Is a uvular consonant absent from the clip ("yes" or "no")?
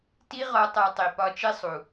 no